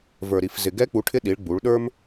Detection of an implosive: present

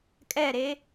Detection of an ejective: present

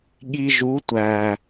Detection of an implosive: present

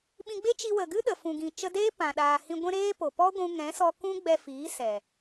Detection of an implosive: present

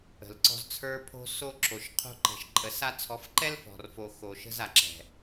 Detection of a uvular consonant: present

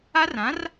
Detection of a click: absent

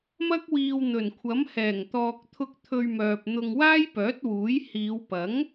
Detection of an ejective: absent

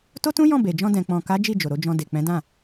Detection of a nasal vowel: present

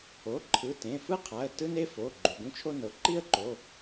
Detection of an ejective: absent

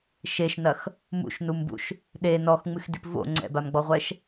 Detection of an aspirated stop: absent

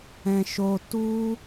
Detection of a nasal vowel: present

